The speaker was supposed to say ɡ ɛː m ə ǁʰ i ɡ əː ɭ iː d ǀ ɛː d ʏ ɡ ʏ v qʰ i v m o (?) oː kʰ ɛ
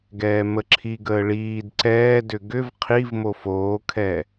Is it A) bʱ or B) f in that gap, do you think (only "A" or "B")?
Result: B